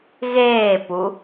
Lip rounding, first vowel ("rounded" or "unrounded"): unrounded